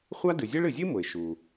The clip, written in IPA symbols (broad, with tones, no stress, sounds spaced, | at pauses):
χʷ a˥ d ɨ˩ zʲ ɨ˥ ɭ ɨ˩ zʲ ɨ˥ m ʊ˩ ɪ̯ ʃ u˩